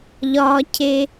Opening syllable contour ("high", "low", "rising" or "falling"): low